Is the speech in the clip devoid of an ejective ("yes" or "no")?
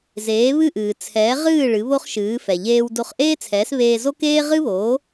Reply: yes